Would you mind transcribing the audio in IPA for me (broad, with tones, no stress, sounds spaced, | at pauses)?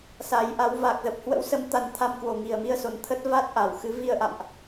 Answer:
s a˨˦ j ʔ a˨˦ w v a˨˩ k̚ z ə˨˩ p̚ h w ə̰˧˥ w s ə˨˦ m t̪ a˨˦ n t̪ʰ a˧ m k w o˨˩ ŋ i˨˩ ə̯ m i˧ ə̯ s o˨˩ n t̪ʰ ə˦˥ t̚ v a˦˥ t̚ ʔ a˧˩ w x ɨ˨˦ v i˧ ə̯ ʔ a̰˧˨ m ʔ